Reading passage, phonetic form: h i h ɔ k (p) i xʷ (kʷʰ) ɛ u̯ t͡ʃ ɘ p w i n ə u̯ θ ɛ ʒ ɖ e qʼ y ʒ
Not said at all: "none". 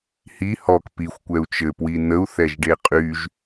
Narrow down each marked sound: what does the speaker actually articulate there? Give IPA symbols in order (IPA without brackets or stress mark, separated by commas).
p, kʷ